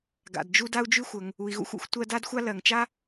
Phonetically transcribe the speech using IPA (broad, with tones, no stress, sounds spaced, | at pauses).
ɡ a̰˩ d d͡ʒ u˦ d a˥ u̯ d͡ʒ ʉ˥ xʷ ə˩ ŋ | u˩ i̯ ɣ ṵ˥ xʷ ṵ˥ xʷ tʷ ɜ˦ d a˥ d xʷ a˥ l ɜ˩ ŋ t͡ʃ a˥